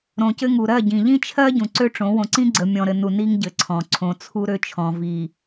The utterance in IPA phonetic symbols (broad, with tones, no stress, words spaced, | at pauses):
ɾõ˨cɘ˦ŋu˨ ɾɜ˦˨ɟĩ˨ ʎĩ˦t͡ʃʰɜ˦ ɟũ˨ǀø˦ʈ͡ʂõ˨˦ wõ˨ǀĩ˦ɡ͡ǀə˨ mʲɔ̃˨ɾɘ˨nu˨ ni˦ŋɟɘ˨ ǀʰɔ̃˨ ǀʰõ˨t͡sʰu˦ɾø˦t͡ʃʰɔ̃˨ vi˨